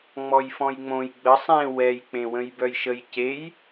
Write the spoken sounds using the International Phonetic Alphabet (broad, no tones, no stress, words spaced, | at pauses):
ŋ͡mɔjfɔ̃jŋ͡mõj ɡ͡bə sˤẽ wɛj k͡pẽwə̃jbœjʃəj cej